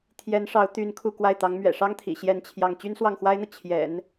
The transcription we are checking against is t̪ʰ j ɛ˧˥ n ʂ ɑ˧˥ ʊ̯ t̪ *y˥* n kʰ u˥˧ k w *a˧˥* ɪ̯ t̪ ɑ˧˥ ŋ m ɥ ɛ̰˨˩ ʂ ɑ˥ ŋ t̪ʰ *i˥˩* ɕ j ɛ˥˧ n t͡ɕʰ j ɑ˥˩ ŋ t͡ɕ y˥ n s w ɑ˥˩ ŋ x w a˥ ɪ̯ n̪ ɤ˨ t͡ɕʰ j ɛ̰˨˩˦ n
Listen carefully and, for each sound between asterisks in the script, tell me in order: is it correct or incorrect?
correct, incorrect: a˥˩, incorrect: ḭ˨˩

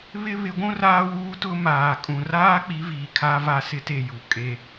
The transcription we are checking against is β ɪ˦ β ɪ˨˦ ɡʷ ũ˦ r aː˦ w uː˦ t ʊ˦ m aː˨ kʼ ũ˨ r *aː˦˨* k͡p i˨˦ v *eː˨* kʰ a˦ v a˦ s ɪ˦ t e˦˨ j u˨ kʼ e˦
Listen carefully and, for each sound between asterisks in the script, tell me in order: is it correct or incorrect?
incorrect: aː˦, incorrect: iː˨

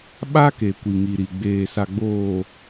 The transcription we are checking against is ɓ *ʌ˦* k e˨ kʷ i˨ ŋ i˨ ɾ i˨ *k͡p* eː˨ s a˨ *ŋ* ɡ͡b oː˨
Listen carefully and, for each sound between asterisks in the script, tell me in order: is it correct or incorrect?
incorrect: a˦, incorrect: ɡ͡b, incorrect: none

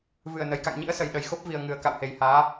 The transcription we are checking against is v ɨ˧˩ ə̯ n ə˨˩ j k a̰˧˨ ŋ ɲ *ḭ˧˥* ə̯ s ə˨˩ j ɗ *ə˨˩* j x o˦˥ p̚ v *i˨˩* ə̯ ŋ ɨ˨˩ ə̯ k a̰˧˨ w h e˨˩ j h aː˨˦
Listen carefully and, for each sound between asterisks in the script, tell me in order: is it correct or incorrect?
correct, correct, correct

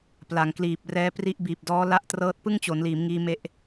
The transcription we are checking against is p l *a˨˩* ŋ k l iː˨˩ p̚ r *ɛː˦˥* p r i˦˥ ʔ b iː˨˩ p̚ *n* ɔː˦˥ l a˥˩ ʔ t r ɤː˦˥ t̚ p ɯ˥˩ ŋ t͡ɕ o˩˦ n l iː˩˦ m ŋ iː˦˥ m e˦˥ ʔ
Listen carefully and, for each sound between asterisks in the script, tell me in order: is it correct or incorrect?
incorrect: a˩˦, correct, incorrect: d

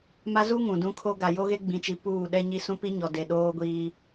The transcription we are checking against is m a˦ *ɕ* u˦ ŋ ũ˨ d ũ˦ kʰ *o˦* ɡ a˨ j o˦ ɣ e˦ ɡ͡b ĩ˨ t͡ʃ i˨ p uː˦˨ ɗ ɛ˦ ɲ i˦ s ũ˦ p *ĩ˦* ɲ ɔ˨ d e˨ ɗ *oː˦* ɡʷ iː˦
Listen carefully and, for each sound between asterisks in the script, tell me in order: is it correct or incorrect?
incorrect: z, correct, incorrect: i˦, correct

